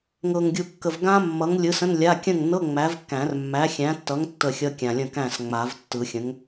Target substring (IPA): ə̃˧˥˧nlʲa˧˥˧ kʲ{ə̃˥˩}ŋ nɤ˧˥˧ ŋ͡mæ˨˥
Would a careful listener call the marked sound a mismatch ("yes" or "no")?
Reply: no